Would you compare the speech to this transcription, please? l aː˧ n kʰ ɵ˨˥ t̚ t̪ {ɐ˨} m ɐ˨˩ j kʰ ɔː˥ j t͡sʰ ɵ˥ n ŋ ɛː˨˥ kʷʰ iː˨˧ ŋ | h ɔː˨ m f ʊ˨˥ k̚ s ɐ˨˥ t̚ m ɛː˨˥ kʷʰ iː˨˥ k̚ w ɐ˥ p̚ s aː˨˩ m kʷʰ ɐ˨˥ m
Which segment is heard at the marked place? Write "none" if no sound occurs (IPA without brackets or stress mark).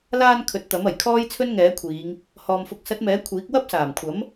ɐ˨˥